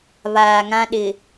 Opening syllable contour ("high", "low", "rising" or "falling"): low